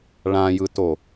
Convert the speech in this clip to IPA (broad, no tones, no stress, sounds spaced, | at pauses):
ɭ ã j ɯ t o